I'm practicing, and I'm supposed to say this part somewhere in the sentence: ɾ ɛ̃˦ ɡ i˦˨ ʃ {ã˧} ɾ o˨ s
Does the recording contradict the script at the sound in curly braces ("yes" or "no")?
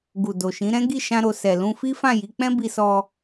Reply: no